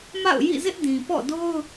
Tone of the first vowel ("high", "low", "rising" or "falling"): falling